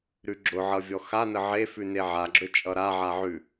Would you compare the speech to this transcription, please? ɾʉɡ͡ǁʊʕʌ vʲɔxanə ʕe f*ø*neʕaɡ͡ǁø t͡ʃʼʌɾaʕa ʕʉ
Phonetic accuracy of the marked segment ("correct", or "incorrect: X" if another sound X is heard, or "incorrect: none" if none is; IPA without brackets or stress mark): incorrect: ʉ